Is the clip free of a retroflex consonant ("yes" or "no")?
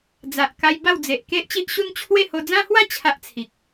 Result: yes